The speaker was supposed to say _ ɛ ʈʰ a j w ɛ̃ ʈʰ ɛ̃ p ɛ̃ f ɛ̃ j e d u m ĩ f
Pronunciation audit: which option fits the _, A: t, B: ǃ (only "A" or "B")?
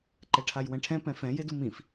B